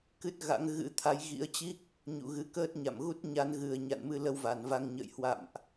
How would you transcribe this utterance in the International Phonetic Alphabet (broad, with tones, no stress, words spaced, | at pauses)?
kɨ˦˥t̚ɣa̰˧˥ŋ ɣɨ̰˧˥t̪ʰa˨˦jɣḭ˧˥ə̯t͡ɕi˦˥k̚ | ɲṵ˧˨ɣɨ˨˦kəː˦˥t̚ ɲa̰˧˨mɣu˦˥t̚ɲa˨˦n ɣɨ˨˩ə̯ɲa̰˧˨nmɨ˧ lə˧wva˧˩nva˧ŋɲə̰ː˧˨j hwa̰˧˨mʔ